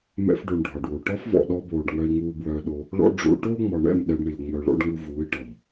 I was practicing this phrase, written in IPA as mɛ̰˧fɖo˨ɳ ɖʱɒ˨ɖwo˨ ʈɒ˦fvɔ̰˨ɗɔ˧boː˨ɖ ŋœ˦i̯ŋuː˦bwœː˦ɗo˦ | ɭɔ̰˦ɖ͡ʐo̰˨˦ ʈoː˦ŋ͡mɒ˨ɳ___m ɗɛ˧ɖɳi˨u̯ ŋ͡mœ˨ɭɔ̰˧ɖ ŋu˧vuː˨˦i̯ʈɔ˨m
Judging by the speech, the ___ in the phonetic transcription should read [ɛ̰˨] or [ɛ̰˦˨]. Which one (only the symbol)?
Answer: ɛ̰˦˨